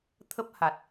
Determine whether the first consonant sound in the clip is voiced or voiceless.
voiceless